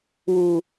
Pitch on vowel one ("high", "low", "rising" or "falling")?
low